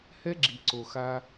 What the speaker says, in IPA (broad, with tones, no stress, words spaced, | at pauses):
hɛ˦ɡ͡ǁi˨ǀo˨xa˦